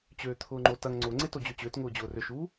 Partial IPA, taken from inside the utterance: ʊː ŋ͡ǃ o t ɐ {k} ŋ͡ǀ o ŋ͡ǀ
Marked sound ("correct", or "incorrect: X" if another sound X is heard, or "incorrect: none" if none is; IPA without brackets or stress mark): incorrect: ŋ